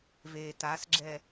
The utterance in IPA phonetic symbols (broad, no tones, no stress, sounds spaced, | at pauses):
v eː t a s ɡ͡ǁ ɛ